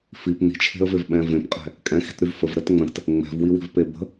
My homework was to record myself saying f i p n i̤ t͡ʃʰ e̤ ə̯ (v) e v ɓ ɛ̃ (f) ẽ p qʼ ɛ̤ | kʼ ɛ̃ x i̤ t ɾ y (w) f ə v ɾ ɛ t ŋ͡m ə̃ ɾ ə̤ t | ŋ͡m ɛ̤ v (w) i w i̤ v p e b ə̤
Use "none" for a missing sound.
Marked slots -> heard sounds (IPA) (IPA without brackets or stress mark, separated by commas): v, v, v, w